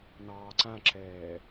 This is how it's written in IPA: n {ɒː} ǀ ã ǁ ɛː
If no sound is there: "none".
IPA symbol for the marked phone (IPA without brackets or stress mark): ɑː